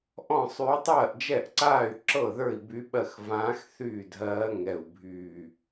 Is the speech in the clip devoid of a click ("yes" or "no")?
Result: no